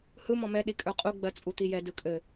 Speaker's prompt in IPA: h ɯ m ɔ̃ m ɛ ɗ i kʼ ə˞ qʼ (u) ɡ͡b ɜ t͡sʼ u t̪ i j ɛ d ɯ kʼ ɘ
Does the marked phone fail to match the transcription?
no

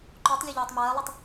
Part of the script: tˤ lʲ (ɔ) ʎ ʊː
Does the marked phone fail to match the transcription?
no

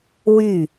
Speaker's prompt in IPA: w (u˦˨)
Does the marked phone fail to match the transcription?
yes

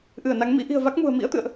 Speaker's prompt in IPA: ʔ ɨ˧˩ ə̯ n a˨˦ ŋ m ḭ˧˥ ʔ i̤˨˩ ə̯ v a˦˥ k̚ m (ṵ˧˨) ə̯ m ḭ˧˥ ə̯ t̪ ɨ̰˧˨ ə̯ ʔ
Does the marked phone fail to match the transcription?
yes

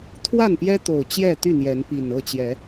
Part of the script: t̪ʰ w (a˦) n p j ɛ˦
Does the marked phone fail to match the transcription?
yes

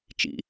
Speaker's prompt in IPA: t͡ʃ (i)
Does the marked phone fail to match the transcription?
yes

